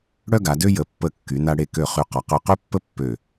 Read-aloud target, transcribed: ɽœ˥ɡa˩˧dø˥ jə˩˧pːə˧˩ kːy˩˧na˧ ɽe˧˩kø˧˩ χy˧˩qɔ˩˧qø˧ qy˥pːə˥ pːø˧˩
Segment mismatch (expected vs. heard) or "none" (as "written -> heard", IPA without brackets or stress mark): none